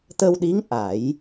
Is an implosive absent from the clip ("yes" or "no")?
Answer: no